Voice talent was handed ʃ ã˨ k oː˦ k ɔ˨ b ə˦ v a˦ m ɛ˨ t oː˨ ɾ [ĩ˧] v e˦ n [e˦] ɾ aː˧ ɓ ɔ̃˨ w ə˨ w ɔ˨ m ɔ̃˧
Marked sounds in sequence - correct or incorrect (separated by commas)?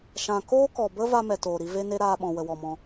incorrect, correct